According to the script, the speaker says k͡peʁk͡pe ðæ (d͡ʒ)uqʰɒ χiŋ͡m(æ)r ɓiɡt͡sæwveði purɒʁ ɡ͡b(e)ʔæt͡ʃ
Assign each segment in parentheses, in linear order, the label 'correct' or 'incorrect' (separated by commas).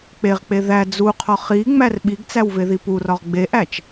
incorrect, correct, correct